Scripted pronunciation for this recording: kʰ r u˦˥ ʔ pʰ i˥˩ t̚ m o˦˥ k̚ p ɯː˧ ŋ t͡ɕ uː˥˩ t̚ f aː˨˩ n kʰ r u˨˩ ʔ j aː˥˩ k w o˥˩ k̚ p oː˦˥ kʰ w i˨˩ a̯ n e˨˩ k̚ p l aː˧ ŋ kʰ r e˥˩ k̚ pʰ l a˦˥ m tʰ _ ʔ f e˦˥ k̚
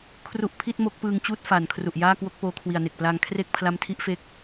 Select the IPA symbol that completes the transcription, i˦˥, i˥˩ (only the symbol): i˦˥